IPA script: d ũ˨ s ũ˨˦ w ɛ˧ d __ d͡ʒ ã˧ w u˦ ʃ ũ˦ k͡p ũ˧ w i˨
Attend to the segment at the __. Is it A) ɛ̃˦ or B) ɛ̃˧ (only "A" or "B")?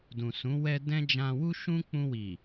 A